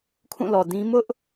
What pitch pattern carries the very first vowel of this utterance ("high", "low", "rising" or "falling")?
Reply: falling